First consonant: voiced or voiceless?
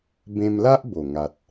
voiced